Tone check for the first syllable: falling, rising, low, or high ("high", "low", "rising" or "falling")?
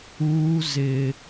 high